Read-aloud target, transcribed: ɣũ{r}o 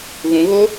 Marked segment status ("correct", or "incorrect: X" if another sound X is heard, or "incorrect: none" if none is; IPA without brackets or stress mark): incorrect: ɣ